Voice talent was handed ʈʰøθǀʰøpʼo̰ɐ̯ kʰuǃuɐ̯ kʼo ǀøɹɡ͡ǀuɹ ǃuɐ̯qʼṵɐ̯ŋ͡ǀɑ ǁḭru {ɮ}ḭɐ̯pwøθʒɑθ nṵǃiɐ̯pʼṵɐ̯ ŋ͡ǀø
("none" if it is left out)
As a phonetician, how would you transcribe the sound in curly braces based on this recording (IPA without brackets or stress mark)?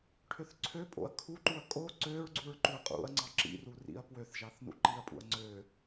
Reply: r